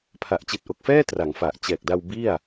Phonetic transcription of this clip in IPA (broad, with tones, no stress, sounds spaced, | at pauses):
pʰ a˨˩ ʔ t͡ɕ i˨˩ t̚ ʔ o˨˩ k̚ f ɛː˥˩ t r a˩˦ ŋ f a˨˩ ʔ t͡ɕ ɛː˨˩ k̚ d a˧ w b i˥˩ a̯